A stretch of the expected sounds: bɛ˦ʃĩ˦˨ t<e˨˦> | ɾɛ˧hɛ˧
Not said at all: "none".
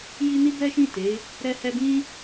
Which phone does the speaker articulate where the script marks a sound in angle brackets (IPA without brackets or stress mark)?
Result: e˨˦